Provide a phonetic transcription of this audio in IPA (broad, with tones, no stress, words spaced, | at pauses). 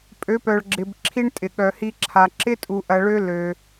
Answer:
pʼø˨˦pœ˨ɭɡ͡ǁɪ˨b ǁʰi˦ɳtʼɪ˨ ɠœ˨hi˧ ǁʰa˨ ǁɪ˦ tʼu˧ʔɐ˧ɭø˦ lø˧